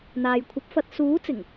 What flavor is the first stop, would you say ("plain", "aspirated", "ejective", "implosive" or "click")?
aspirated